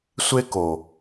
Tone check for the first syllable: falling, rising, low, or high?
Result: high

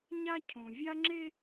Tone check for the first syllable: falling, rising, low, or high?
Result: high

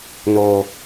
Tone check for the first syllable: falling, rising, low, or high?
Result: low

